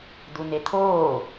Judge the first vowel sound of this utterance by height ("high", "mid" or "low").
high